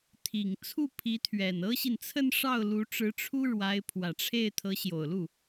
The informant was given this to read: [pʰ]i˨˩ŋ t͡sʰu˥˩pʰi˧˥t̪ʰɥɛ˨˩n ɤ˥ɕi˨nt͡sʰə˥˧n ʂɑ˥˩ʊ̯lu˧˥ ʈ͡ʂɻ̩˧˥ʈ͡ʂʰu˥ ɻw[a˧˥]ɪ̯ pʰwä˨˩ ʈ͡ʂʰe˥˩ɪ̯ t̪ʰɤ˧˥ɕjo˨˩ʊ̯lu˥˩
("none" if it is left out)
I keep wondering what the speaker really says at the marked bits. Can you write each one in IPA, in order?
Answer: t̪ʰ, a˧˥

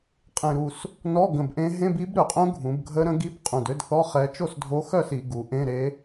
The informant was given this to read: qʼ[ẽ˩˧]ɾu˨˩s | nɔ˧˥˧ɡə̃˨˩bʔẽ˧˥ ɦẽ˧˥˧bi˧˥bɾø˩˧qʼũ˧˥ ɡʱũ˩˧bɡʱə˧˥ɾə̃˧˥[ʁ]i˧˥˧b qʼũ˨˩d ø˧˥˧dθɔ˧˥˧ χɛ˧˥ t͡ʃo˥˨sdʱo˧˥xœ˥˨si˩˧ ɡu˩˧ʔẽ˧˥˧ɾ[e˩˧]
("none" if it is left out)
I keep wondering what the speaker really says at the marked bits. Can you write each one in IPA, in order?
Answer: ẽ˨˩, ɡ, e˧˥

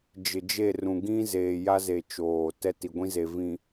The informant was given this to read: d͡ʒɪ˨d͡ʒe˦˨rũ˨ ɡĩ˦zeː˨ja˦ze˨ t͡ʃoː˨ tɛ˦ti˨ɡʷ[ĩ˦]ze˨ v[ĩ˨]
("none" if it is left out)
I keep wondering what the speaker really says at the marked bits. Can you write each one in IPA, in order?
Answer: ĩ˦, ĩ˨

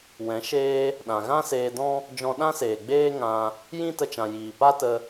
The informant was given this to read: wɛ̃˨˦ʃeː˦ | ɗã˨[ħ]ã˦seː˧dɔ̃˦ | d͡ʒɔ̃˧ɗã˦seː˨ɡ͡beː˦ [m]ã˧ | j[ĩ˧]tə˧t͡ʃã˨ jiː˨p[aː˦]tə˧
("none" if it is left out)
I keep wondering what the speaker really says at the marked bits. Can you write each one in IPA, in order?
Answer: ɣ, ŋ, ĩ˦, a˦

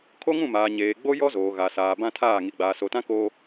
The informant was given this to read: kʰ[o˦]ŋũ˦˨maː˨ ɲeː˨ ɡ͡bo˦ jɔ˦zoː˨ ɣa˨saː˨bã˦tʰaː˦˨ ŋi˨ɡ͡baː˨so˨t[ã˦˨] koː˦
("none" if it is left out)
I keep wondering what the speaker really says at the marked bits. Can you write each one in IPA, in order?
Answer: o˦, ã˦

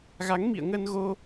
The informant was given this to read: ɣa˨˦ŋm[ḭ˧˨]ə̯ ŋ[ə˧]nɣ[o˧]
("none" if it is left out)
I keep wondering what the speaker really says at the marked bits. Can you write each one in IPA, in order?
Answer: ḭ˧˨, ə˧, o˧

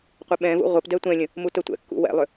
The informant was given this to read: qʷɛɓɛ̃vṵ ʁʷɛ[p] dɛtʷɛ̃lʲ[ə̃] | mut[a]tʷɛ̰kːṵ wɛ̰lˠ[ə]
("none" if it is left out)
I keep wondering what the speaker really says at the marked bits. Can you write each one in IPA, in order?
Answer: p, ə̃, ə, ʏ

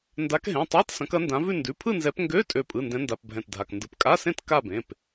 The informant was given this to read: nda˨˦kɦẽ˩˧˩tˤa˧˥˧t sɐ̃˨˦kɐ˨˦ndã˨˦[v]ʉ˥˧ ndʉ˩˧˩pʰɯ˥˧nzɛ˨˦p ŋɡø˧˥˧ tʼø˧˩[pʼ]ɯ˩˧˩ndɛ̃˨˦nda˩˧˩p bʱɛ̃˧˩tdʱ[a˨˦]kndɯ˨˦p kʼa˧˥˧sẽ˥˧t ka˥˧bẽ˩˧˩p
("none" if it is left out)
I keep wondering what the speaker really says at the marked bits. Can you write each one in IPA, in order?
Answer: v, pʼ, a˩˧˩

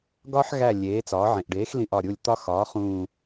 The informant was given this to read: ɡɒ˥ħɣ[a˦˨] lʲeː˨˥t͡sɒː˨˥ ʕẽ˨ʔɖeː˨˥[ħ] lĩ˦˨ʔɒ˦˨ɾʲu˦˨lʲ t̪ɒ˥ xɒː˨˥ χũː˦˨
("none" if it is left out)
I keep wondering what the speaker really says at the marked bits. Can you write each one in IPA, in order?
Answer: æ˦˨, x

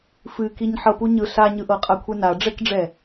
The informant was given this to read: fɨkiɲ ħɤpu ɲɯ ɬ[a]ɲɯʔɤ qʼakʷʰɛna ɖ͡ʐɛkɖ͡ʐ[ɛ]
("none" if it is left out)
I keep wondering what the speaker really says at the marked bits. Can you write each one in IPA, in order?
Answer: a, ɛ

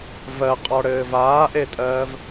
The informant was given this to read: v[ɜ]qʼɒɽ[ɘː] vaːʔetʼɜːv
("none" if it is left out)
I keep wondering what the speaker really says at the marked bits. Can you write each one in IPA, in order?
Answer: ɜ, ɘː

